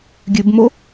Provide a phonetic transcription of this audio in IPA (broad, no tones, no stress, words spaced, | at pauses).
ɡʲʉbmo